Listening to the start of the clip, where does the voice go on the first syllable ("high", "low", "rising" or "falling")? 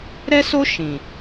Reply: high